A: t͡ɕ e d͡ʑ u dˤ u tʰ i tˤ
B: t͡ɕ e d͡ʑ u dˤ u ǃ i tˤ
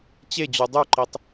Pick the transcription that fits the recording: B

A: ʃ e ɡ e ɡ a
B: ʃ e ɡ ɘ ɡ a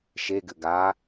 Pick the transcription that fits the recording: B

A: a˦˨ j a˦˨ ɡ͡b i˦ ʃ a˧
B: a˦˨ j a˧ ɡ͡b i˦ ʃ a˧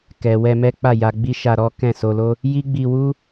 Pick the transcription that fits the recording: B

